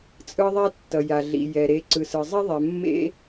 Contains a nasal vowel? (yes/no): no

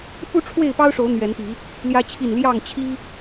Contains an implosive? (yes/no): no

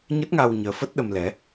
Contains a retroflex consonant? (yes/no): no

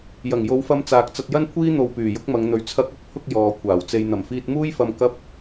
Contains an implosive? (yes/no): no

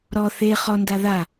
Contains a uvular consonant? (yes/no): yes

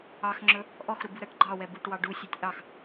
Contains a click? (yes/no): yes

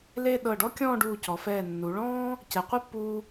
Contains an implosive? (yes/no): yes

